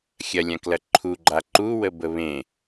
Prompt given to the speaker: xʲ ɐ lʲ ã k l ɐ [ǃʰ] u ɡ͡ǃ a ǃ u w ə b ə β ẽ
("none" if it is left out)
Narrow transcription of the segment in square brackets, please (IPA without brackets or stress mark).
ǃʰ